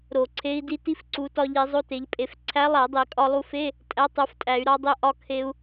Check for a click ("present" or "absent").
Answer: present